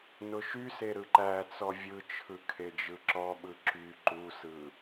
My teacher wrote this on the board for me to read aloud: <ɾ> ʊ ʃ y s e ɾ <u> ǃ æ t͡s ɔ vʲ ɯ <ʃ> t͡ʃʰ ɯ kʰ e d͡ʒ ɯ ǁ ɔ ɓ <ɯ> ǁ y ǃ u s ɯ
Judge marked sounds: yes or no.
no, no, no, yes

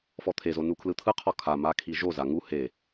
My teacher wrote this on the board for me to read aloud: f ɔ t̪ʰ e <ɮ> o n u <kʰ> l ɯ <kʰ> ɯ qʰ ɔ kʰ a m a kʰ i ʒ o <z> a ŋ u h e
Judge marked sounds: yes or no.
no, yes, no, yes

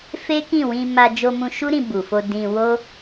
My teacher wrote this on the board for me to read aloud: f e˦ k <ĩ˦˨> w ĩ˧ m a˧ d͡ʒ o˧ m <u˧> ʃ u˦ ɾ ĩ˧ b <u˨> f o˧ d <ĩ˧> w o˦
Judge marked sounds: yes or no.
yes, no, yes, yes

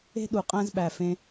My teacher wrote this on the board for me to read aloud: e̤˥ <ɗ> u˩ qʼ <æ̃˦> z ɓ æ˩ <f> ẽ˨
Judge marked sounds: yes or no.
yes, yes, yes

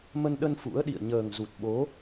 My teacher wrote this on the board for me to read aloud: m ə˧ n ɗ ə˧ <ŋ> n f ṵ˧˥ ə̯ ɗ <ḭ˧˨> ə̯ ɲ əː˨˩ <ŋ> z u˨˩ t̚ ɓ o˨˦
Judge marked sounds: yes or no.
no, yes, yes

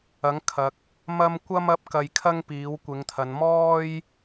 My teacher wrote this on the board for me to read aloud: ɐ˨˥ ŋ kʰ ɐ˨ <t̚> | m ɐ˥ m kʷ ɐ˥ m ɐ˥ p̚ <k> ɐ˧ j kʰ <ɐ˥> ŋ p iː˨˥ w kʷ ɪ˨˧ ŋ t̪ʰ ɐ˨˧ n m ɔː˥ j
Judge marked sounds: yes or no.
no, yes, yes

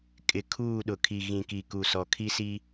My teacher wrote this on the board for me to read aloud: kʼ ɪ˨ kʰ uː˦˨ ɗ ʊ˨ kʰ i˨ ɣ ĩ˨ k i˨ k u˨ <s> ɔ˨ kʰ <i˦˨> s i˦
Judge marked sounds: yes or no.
yes, no

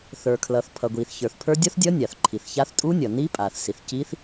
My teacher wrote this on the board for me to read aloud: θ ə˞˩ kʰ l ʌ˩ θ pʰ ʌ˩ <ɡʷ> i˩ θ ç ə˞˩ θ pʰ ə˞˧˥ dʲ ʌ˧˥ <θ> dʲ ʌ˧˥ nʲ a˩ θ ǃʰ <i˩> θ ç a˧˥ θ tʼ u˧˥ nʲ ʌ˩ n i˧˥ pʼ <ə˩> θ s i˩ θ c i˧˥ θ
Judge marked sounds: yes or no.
yes, yes, yes, no

